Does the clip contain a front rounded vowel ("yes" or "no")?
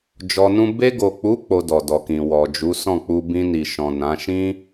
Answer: no